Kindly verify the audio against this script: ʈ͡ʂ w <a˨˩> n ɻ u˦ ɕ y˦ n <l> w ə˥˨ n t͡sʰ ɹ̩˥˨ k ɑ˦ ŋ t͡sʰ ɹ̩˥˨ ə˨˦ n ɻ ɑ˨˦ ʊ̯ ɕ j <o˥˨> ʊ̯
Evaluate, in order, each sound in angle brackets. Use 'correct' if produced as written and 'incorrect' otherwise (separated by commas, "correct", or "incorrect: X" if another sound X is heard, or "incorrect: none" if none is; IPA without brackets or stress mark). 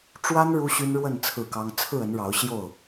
incorrect: a˦, incorrect: ɻ, correct